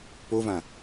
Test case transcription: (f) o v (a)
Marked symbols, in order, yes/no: no, no

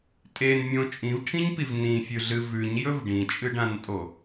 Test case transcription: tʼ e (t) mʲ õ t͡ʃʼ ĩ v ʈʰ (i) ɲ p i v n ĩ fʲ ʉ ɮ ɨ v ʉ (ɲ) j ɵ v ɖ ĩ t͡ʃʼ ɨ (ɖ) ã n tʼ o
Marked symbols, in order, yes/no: no, no, yes, yes

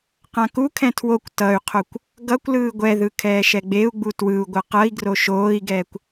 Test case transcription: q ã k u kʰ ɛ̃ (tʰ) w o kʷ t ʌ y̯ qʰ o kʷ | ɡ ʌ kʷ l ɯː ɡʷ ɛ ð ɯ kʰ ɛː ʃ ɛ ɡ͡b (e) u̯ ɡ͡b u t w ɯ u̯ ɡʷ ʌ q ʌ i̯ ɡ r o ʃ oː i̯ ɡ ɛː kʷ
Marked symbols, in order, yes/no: yes, yes

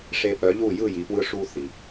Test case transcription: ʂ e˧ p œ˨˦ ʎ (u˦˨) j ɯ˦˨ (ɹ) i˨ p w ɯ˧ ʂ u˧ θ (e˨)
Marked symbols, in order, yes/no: yes, no, no

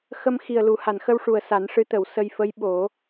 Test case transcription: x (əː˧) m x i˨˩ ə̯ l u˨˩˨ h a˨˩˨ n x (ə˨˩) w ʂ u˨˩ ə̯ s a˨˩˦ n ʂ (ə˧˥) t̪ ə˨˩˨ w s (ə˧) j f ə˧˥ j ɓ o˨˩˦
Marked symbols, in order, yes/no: no, no, no, yes

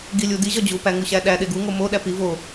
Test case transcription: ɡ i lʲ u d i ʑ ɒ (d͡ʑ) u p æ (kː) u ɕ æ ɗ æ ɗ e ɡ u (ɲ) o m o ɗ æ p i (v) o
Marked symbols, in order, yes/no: yes, no, no, yes

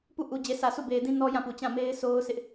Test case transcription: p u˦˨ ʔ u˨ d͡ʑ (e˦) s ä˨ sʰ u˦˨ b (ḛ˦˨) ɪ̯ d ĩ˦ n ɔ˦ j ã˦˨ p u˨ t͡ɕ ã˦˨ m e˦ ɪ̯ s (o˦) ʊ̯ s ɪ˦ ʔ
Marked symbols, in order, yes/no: no, no, yes

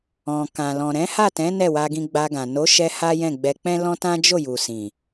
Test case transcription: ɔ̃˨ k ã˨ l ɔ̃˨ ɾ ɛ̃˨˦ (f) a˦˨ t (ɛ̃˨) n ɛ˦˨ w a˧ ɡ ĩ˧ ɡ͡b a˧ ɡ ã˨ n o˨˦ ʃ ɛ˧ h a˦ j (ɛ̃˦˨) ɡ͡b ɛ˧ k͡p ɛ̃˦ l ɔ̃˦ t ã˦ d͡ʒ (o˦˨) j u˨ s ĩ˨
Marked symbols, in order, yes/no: no, no, yes, yes

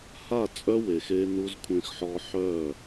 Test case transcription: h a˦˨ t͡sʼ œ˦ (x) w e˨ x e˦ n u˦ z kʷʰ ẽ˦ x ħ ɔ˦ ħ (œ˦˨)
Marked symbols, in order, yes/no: no, yes

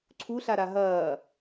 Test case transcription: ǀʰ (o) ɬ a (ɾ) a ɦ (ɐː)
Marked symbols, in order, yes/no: no, yes, yes

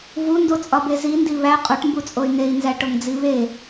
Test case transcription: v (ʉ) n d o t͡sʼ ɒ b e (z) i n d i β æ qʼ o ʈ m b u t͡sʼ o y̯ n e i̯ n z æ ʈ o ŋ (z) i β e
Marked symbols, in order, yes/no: no, yes, no

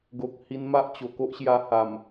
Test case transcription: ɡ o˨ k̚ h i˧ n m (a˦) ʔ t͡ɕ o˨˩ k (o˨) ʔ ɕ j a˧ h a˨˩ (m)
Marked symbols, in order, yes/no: yes, no, yes

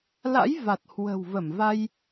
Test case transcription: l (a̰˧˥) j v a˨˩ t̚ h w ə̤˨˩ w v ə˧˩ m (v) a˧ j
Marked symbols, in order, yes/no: yes, yes

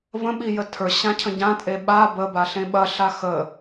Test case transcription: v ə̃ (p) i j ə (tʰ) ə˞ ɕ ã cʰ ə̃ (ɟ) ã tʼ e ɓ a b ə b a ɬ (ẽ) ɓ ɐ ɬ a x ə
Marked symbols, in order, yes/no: no, yes, yes, yes

